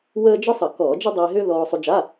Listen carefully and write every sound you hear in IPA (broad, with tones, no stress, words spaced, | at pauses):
wəː˥ d͡ʒə˥sˤə˧˩˧ kɔː˧˩˧d͡ʒə˥ dˤiː˧ɦʏː˥ ðɔː˧sˤu˧d͡ʒa˧˥˧